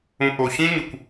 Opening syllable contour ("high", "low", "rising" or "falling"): low